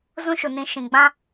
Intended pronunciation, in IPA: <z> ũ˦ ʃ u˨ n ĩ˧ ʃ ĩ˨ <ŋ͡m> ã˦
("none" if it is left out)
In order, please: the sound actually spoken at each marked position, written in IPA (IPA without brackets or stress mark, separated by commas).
z, ɡ͡b